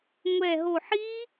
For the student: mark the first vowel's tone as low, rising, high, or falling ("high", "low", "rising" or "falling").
low